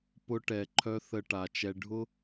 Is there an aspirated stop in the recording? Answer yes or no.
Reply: yes